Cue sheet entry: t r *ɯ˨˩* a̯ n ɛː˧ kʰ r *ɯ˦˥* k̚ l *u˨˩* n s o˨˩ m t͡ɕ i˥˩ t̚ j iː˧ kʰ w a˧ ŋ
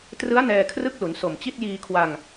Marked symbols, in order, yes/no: no, no, no

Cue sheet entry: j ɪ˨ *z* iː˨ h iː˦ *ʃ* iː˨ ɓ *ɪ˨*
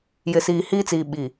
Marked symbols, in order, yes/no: no, no, no

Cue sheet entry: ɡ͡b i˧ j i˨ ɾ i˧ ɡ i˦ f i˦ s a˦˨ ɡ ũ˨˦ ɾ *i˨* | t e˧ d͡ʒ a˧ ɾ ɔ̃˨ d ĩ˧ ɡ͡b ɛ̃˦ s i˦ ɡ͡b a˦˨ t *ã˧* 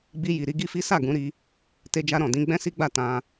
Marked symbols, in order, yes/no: no, yes

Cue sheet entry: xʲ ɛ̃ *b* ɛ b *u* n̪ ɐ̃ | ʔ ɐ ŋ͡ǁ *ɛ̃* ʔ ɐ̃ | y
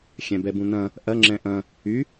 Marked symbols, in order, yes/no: yes, no, yes

